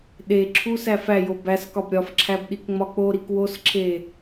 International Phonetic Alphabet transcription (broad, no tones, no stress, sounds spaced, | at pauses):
ɗ e ǁʰ u s æ f æ j o b æ s k ɒ b ɾʲ ɒ f ǁʰ æ b ɗ i k ŋ͡m ɒ k͡p o ɾ i k w o s ǁʰ e